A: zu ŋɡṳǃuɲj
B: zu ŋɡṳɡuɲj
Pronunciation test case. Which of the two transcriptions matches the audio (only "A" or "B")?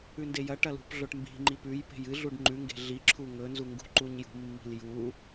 A